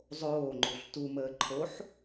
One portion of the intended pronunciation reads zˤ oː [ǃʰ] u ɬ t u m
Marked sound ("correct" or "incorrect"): incorrect